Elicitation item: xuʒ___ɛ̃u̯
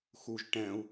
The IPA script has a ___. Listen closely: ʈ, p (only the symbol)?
ʈ